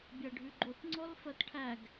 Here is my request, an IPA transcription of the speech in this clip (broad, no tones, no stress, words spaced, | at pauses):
bʲæɖʱʉɡ͡ǃot ŋ͡ǀɔlfɜtʈʰæɡ